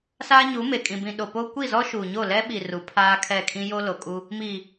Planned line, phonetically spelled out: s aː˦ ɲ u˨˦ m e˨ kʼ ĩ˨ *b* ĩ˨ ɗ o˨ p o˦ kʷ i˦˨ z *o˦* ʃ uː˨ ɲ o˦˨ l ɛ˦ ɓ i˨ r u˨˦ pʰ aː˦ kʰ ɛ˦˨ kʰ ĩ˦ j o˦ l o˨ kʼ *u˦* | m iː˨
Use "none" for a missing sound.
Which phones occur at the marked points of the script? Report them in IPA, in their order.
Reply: b, ɔ˦, u˦

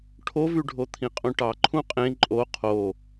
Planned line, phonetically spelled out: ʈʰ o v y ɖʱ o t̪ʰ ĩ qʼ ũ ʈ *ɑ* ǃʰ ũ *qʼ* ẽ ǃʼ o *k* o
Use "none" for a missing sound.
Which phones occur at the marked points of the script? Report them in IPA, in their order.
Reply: ɑ, qʼ, qʰ

